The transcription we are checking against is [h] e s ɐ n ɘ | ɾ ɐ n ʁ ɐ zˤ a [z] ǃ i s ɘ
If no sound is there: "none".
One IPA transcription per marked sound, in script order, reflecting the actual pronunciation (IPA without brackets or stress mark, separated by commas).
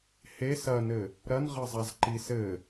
h, z